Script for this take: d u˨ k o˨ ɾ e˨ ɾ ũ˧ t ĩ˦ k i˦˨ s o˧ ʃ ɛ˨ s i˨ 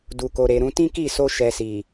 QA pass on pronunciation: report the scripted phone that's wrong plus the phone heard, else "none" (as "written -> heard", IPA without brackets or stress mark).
none